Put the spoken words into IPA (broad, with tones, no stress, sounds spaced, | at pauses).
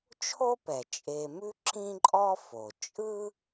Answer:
t͡ʃʰ o˥ p ɛ˩ t͡ʃʼ e˨ m ʉ˥ ǁ ĩ˥ ǃʼ ɔ˥ f o˩ t͡ʃʼ ɯ˥